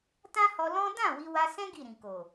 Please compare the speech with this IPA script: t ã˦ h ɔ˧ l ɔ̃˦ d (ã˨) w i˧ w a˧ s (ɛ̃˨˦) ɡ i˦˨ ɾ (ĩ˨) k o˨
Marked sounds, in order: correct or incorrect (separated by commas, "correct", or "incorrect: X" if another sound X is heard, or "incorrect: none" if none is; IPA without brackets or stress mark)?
incorrect: ã˦˨, incorrect: ɛ̃˦, correct